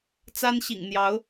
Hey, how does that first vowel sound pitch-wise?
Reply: high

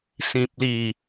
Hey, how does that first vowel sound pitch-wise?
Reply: low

